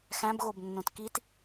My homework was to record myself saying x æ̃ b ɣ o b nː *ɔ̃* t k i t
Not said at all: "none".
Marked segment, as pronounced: õ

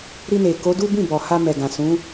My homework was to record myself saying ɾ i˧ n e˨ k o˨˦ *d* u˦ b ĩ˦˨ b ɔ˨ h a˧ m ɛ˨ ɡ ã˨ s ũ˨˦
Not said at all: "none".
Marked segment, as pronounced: d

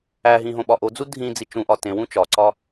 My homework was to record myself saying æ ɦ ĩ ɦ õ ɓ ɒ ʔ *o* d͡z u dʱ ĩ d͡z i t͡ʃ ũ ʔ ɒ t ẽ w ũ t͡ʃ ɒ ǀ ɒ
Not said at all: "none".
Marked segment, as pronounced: o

